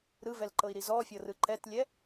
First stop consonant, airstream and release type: click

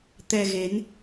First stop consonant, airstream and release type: plain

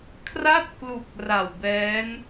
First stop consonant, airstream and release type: aspirated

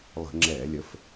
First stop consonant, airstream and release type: click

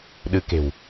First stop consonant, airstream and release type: implosive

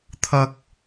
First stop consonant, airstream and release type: aspirated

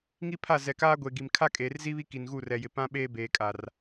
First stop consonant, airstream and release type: aspirated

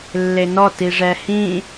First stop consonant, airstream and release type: plain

